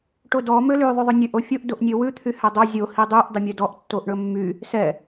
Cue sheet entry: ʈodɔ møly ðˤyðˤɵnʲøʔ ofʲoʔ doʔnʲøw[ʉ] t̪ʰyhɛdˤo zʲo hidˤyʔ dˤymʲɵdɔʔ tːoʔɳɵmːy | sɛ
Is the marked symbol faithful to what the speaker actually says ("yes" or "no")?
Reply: yes